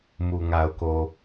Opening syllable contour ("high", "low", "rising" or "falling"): low